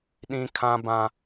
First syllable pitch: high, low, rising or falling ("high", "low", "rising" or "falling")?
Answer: high